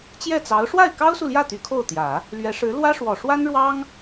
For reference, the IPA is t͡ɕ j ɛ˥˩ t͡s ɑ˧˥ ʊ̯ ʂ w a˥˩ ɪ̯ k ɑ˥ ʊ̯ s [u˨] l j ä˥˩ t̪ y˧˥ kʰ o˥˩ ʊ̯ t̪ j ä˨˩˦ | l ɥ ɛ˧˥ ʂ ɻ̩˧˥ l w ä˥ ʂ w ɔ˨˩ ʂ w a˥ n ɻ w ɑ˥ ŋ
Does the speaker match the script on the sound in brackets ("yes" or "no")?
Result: yes